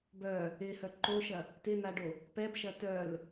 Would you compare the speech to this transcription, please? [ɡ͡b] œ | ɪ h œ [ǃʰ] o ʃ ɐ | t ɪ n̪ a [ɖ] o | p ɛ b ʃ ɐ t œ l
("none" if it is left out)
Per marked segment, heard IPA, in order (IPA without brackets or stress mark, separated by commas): b, ǃ, ɖ